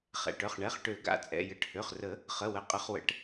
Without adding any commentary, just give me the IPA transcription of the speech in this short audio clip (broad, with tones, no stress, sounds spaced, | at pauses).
χ ɛ̰˩˧˩ ʈ œ˩˧˩ χ ɳ ɛ˩˧˩ χ ʈ ø˨˩˦ ɡ a̰˩˧˩ t͡sʼ ɛ̰˩˧˩ j ə˨˩˦ ʈ h ø˩˧˩ χ r ə˨˩˦ | χ ə˩˧˩ w ə˩˧˩ qʼ ə˨˩˦ χ w ə̰˨˩˦ ʈ